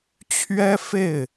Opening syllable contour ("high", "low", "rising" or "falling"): high